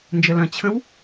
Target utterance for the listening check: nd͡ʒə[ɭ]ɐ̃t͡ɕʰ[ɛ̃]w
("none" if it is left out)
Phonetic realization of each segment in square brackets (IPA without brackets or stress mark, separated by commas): l, ə̃